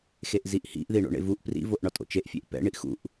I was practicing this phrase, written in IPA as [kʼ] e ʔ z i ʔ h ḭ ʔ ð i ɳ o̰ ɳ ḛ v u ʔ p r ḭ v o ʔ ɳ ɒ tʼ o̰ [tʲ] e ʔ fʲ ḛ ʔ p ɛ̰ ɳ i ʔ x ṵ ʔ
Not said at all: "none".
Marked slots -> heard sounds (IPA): x, t͡ʃ

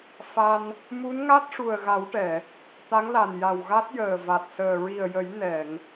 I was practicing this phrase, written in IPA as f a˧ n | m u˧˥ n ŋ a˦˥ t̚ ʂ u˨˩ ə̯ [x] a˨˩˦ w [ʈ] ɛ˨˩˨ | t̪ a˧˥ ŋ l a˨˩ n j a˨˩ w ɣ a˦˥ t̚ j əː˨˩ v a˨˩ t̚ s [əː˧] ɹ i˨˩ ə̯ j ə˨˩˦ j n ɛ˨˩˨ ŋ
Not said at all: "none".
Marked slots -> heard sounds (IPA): ɣ, ʈ, əː˨˩

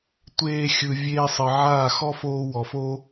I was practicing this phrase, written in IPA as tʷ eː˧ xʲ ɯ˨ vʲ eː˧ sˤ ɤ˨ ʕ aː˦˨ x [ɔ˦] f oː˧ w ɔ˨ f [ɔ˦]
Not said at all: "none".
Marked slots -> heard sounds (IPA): ɔ˦, o˦

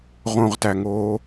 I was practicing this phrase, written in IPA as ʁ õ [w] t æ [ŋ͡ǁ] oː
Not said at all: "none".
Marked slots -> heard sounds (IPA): ʁ, ŋ

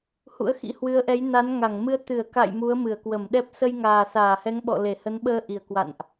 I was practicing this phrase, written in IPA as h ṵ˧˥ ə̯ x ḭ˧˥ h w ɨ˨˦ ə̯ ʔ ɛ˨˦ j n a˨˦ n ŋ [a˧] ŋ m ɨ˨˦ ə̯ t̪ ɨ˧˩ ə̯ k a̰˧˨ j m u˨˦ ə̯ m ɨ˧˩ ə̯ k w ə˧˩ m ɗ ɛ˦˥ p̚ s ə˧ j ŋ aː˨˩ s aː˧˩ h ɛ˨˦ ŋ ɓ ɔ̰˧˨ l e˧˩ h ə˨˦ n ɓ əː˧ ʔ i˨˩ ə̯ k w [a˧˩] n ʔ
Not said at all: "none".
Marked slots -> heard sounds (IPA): a˧˩, a̰˧˨

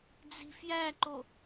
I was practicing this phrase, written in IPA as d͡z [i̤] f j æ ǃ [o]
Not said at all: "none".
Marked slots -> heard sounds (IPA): i̤, o

